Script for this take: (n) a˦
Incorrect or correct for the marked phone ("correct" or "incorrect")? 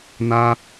correct